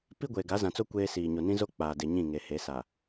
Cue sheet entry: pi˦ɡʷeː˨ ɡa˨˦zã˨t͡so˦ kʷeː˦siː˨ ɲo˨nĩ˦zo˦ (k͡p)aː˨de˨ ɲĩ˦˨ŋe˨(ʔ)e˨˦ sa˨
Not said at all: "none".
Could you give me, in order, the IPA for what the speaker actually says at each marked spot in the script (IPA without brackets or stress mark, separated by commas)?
k͡p, h